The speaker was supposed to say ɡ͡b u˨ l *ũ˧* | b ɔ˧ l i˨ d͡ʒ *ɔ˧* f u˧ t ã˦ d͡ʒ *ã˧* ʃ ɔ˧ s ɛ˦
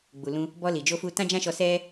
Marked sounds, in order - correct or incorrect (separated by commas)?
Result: correct, incorrect, incorrect